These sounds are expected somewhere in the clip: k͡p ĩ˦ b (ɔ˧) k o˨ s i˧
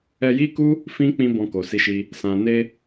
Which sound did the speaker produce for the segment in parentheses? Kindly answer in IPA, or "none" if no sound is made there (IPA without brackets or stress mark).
ɔ̃˧